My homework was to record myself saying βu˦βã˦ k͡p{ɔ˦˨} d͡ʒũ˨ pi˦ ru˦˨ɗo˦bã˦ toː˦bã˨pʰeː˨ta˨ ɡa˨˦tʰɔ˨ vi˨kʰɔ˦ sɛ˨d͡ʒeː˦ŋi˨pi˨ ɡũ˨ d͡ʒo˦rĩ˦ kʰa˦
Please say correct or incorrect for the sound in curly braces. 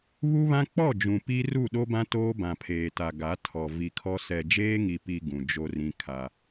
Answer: correct